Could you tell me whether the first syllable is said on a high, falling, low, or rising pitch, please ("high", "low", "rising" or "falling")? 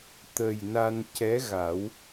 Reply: low